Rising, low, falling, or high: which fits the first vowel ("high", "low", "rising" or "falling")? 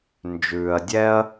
low